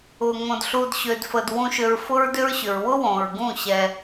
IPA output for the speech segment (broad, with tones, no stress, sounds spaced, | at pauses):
ʊ˨ ŋ õ˨ d ɬ u˨ d ɕ ø˨ d f ə˨ d w ũ˨ ʃ ø˨ ɹ f ʊ˦ ɹ d ʏ˦ ɹ ɕ ʏ˨ ɹ w ʊ˦ w õ˨ ɹ ɡ ũ˦˨ ɕ ɛ˦